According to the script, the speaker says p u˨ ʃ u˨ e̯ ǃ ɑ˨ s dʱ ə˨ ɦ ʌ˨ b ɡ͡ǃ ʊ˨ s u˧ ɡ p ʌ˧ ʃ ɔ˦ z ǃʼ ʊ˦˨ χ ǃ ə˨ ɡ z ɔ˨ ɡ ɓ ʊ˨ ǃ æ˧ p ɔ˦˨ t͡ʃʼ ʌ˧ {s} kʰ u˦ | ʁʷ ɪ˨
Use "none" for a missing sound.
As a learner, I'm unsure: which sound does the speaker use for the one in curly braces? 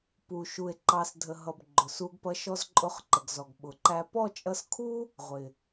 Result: s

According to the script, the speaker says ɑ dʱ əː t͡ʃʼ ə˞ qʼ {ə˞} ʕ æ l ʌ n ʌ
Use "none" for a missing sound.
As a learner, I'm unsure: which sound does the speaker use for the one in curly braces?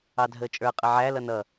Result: ə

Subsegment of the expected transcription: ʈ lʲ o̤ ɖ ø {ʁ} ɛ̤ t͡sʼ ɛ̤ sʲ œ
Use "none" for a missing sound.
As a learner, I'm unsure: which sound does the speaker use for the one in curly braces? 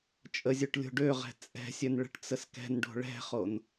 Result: ʁ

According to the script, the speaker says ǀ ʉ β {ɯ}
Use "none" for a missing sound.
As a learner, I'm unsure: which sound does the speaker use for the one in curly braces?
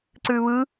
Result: ɯ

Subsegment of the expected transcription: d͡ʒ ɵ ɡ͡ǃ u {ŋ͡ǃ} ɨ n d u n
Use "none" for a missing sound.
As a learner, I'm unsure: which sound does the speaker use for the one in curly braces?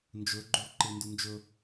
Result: ǃ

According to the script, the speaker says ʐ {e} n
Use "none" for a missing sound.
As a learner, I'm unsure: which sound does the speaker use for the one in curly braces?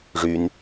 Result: y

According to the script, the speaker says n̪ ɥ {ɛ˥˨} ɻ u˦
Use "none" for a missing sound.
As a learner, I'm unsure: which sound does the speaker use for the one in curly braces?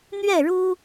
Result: ɛ˥˨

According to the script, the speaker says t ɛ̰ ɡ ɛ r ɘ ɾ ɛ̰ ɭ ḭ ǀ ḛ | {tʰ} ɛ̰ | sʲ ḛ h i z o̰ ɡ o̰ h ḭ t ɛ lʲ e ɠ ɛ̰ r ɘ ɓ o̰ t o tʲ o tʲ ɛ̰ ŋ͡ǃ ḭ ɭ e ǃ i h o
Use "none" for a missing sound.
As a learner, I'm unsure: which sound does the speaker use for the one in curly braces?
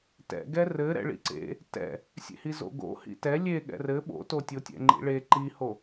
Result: t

